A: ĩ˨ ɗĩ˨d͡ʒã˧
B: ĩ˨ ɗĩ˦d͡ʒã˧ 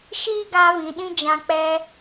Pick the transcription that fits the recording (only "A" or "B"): B